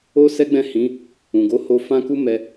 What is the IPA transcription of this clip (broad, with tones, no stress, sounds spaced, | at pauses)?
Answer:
o˦ s ɛ˦ ɡ͡b ɛ̃˦˨ h ĩ˨˦ | ũ˨ ɡ o˨˦ h o˧ f ã˦ k u˦ m ɛ˧